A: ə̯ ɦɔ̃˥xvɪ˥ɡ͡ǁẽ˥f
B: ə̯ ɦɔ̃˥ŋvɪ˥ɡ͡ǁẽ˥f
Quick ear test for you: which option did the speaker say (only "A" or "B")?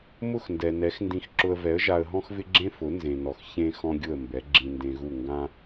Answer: A